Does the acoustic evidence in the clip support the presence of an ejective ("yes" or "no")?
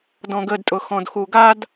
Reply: yes